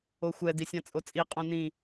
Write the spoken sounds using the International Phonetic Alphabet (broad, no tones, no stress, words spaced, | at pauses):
oxʷɛ disʲãt͡sʼot͡sʼi qʼõnĩ